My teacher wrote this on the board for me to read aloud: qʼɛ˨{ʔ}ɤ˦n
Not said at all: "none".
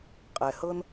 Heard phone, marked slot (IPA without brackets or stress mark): h